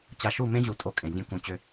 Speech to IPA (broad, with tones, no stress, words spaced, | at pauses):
t͡ɕa˨ʃu˦˨mẽ˦ʑu˨ tʼo˦kʼẽ˨zʲũ˦kũ˦˨ t͡ɕʏ˦